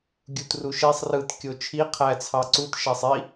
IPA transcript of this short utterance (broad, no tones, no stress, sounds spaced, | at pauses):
ɡʲ u t r u ʃ e sˤ r ɯ t kʲ o t͡ʃʰ i qʰ æ t͡sʰ ɑ ǀ u t ʃ æ sˤ i